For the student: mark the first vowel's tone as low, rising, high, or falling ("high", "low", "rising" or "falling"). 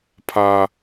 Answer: high